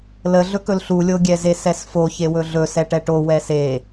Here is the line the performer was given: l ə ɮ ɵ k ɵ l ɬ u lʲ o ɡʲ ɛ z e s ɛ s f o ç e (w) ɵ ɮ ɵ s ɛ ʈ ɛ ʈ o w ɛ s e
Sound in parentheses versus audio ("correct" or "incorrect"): correct